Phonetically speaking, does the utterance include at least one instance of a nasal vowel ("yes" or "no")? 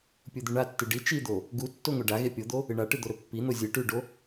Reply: no